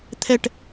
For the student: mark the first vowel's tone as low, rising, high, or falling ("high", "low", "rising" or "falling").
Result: falling